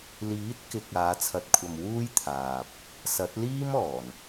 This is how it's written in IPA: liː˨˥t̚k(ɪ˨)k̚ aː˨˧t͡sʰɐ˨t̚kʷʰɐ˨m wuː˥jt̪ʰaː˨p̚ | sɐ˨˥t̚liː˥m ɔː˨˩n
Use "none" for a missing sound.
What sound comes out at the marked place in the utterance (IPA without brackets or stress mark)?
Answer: ɪ˨